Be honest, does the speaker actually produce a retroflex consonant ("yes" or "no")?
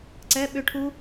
yes